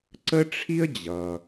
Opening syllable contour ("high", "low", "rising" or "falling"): high